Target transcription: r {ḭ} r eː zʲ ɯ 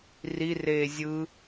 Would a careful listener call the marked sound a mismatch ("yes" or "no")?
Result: yes